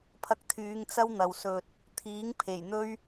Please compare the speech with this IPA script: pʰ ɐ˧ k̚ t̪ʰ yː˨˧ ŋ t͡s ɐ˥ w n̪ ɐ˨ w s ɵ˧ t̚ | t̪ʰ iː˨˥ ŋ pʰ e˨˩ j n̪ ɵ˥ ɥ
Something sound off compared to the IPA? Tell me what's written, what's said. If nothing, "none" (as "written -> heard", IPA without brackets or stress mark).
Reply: none